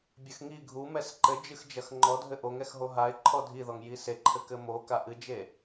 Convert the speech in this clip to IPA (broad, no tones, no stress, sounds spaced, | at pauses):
bʲ ɘ x ŋ i ɡʱ u m ɛ s ǃ ɘ d͡ʒ ɨ x d͡ʒ ɐ x ŋ͡ǃ ɔ dʱ ɘ ʔ o ŋ ɛ x ɦ o ɦ a ɪ̯ ǃʰ ɔ dʱ i ð ɔ ŋ j i s e ǃʰ ɘ k ɘ m o k a ʔ ɨ d͡ʒ e